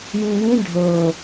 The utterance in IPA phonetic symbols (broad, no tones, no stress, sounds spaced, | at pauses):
j ĩ j ĩ ɖʱ ɤ